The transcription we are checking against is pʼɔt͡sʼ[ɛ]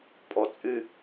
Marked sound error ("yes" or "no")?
yes